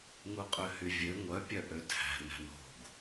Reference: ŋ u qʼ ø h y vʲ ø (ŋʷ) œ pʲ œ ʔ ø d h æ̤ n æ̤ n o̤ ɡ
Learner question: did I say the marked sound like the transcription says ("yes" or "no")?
yes